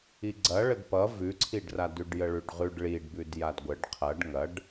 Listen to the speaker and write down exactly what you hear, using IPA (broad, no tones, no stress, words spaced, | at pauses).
iɡ͡ǀɐ ɭədpʌ vʉǀʰiɖra dʉɖjəɭʉɖʁʉɖ ɭiɖbʉd jadɡʷəɖ qʰɐɖ ŋɐɖ